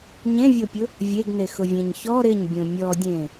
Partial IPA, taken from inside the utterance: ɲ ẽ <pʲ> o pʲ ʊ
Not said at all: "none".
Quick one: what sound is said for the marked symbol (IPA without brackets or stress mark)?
vʲ